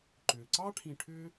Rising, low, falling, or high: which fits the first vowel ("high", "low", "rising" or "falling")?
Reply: low